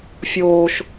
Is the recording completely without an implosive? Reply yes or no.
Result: yes